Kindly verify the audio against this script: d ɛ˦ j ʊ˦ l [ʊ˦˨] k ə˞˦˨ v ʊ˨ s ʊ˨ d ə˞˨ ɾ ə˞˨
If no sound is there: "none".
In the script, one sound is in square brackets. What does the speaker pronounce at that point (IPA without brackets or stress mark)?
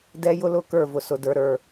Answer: ʊ˦˨